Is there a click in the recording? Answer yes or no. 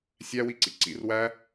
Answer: yes